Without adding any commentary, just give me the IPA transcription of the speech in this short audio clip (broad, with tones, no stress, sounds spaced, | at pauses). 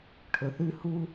ʈʰ ɵ˨ θ ʉ˧ h u˦